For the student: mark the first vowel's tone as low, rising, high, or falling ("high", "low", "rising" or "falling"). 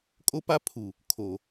high